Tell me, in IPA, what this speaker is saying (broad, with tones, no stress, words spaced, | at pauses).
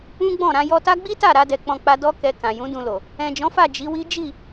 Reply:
ũ˦ɡ͡bɔ̃˦˨ ɾã˧jɔ˧ta˦ ɡ͡bi˦ta˦˨ɾa˧dɛ˨ k͡pɔ̃˧k͡pa˧ dɔ˦kɛ˧kã˨ jũ˨˦dũ˧lo˨ | ɛ̃˨d͡ʒɔ̃˨˦fa˦˨ d͡ʒi˨˦wi˦ d͡ʒi˦˨